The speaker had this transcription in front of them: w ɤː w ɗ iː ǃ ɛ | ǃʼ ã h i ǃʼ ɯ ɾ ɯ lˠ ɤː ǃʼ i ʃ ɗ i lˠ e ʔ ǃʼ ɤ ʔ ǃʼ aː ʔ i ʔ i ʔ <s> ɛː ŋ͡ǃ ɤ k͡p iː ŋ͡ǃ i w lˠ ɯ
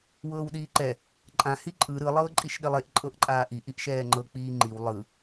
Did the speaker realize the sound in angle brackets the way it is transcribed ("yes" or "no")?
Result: no